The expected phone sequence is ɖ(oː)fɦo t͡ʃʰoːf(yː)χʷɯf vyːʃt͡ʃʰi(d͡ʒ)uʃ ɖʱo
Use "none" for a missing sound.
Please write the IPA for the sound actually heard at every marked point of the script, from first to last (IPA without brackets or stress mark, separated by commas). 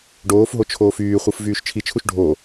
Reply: oː, yː, t͡ʃʰ